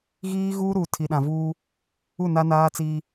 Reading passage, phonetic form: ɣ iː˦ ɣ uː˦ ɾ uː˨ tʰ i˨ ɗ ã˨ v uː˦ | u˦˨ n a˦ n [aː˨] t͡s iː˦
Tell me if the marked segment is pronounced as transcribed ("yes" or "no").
no